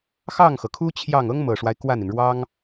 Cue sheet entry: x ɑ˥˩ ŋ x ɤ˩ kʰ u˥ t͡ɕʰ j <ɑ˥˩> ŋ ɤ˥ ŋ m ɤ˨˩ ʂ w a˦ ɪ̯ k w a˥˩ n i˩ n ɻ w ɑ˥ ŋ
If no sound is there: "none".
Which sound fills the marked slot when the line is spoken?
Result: ɑ˥˩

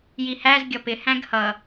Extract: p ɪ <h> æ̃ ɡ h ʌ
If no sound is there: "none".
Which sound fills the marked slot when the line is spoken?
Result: h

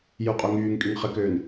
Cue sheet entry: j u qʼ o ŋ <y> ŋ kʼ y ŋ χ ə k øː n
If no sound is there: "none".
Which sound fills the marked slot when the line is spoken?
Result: yː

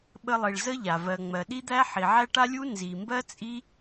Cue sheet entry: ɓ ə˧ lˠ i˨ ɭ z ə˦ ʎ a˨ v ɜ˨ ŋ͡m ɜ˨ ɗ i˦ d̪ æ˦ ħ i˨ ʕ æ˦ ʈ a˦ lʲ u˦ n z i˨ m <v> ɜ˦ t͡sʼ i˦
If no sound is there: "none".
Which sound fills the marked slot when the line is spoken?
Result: b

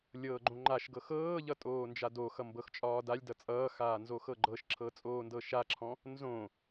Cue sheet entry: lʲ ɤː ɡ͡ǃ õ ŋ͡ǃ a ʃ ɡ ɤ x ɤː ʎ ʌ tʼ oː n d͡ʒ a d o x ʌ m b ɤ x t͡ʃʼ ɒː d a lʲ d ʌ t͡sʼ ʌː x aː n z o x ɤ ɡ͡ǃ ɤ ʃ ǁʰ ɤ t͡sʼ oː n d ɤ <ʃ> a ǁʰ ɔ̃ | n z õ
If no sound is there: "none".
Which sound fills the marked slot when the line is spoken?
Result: ʃ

